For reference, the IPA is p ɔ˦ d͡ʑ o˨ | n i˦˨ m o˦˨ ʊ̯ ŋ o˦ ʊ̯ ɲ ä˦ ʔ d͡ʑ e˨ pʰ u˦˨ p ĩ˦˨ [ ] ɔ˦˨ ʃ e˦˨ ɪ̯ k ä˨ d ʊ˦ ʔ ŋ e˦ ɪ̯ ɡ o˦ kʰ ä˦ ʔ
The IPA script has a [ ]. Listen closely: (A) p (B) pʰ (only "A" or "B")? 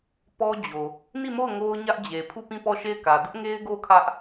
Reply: A